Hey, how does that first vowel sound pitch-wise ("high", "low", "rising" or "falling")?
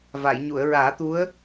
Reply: low